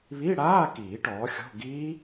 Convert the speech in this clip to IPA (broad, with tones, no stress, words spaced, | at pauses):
βi˧˥˧ɽaː˧˥˧kiː˨˩˦ ʈɔː˩˥xʲɔ̤˧˥˧ ɡiː˦˥